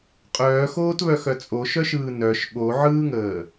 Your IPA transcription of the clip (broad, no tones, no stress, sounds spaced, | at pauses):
qʼ œː x oː t β œ x œ t͡sʼ o ʃ œ ʃ ɯː n œ ʃ ɠ o ʕ ɯː ŋ əː